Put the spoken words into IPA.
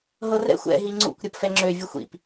ɦ ɤ r ɛ̰ xʷ ɛ̰ ɦ i ŋ͡ǀ ṵ kʷ ɾʲ ɤ p f ɛ ŋ͡ǁ ø vʲ u xʷ ḭ p

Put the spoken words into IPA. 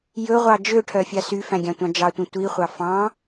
j ɵ ʁʷ ɑ d͡ʒ ø ʈʰ œ fʲ ɑ s y f æ̃ ɡʲ ɑ̃ tʷ ɑ̃ d͡ʒ ɑ tʷ ĩ tʷ i χʷ ɑ f ɑ̃

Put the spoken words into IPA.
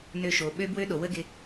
n ø˧ ʃ o˨ ɓ ø˦ b w ø˦ ɗ o˨ w ə˦ ɡ ɪ˧

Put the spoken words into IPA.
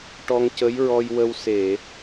ʈ ɔ˧ ŋ c ə˧˥ j ɹ ɔ˧ j w ə˧ w s e˨˩˨

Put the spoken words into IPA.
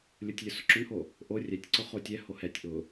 lʲ ʊ tʲ lʲ ʊ s ʊ ǁ ʊ n h o | ʔ o rʲ ɛ tʲ ǀ ʊ χ o tʲ ɛ h o h ɛ tʲ ʔ ʊ

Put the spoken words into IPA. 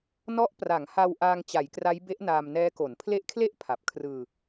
n ɔ˦˥ ʔ p r a˩˦ ŋ h a˧ w ʔ aː˧ ŋ t͡ɕ a˩˦ j k r a˦˥ j b e˦˥ ʔ n aː˧ m n ɛː˦˥ k o˩˦ n pʰ l e˦˥ ʔ kʰ l e˥˩ ʔ pʰ a˨˩ p̚ kʰ r ɯː˧

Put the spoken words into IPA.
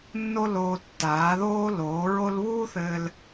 nː o˦ l oː˧ tː aː˨˦ ð oː˦ l oː˨˦ ɹ o˦ l β uː˦ θ ɘː˧ l

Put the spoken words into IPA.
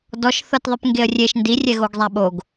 d ɔ ʃ θ ɤ t ðˤ ɯ p ŋ ɡ e ə̯ rʲ e ʃ n d i rʲ ɛ ɣ o ɡ zˤ a ɓ o ɡ

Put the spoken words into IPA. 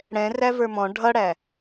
ɽ ɛ̃ r æ v ə˞ m ɔ̃ ɖʱ ʌ ɽ æ

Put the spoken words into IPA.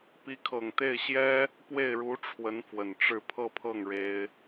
p i˧˥ kʰ ɤ˨˩ ŋ t̪ e˥˩ ɪ̯ ɕ j ɛ˥ | p w e˥˩ ɪ̯ ɻ u˧˥ ʈ͡ʂʰ w ə˧˥ n f w ə˨˩ n ʈ͡ʂ ɻ̩˥˧ pʰ ɤ˥˧ pʰ ɤ˥˩ ŋ ɻ e˥ ɪ̯

